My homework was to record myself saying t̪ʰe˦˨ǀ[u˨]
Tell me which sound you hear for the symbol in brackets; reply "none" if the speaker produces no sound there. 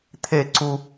u˦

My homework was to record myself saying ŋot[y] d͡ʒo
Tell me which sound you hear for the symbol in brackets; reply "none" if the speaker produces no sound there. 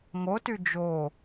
y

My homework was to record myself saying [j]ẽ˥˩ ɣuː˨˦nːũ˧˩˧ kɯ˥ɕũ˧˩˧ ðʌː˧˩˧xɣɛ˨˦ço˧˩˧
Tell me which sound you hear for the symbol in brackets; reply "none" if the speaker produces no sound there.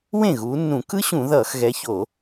w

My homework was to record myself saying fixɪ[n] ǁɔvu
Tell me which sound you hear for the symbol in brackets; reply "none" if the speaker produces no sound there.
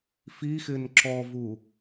n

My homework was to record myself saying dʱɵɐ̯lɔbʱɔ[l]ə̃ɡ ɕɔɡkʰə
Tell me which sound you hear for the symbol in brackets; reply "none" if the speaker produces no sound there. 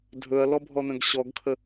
n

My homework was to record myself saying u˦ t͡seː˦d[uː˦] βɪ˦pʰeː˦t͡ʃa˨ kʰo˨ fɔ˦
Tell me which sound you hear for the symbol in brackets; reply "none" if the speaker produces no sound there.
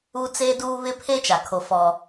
uː˦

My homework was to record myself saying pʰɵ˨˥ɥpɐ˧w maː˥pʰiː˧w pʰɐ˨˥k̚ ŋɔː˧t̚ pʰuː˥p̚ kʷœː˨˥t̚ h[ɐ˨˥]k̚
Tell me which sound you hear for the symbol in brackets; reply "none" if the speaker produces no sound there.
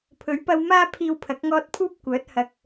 ɐ˧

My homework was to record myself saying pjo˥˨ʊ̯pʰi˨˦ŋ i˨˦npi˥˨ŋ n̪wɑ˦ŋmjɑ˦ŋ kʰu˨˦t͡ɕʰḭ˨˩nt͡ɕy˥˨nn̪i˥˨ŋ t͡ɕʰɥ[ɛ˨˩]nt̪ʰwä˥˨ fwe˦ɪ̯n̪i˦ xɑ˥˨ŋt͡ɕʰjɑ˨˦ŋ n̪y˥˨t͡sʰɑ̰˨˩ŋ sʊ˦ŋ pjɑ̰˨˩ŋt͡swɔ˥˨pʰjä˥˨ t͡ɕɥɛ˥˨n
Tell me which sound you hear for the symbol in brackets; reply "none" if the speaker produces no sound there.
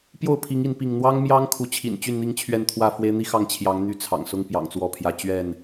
ɛ˥˨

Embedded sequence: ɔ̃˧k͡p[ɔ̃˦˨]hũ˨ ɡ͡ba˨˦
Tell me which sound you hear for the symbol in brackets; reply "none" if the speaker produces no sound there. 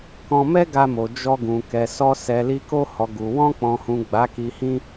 ɔ̃˨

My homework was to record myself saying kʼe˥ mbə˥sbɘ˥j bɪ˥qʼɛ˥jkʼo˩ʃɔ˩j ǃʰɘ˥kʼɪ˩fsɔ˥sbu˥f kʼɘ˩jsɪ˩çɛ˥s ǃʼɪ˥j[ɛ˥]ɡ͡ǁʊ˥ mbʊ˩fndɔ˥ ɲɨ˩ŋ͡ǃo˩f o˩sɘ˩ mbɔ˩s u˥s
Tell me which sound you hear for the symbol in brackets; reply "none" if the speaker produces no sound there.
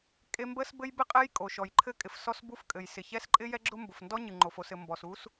ɛ˥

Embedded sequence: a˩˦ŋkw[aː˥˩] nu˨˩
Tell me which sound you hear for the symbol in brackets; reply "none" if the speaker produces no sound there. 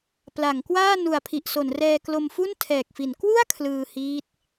aː˥˩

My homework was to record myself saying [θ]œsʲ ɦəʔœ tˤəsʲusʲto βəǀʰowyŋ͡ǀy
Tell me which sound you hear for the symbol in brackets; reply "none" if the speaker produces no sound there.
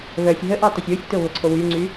β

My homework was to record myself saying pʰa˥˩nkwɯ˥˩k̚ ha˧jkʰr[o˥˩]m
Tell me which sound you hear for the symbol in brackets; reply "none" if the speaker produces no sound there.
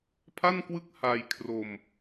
o˧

